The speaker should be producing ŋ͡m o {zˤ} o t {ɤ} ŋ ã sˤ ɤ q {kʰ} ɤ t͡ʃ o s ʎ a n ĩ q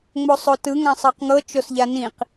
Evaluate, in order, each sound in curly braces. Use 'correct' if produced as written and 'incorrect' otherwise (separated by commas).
incorrect, incorrect, incorrect